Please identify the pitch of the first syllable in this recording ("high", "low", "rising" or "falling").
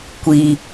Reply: low